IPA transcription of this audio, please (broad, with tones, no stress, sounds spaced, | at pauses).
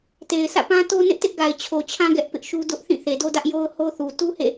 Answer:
t e˨ ɪ̯ s ä̰˦˨ p ã˦ t o˦ n ɪ˦ ʔ t ɪ˦ ʔ ɡ a˨ ɪ̯ t͡ɕʰ o˨ t͡ɕʰ ã˦ ɡ ɛ˦ ʔ p ɪ˦ ʔ ʃ u˦ d ʊ˦ ʔ θ ĩ˦˨ θ e˨ d o˦ d ä˦ ʔ j o˦ ʊ̯ h o˦ θ u˨ t u˦ h ḛ˦˨